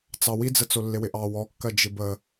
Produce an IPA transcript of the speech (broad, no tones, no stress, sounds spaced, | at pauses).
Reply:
t͡s ɑ w i d͡z ə t͡s o lː ɪ w ɪ ʔ ɑ w ɔ kː ɜ d͡ʒ ɪ b ə